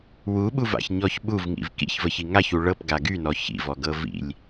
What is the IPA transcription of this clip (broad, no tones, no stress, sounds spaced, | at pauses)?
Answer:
w u ɓ u v a̰ ç ɲ ɔ ç ɓ u v ŋ ḭ v k ḭ ç v ə ç i ŋ a ç u ɭ ɤ p ɡ a ɡ y n ɔ ç ḭ v ɔ ɡ ɤ v ḭ lʲ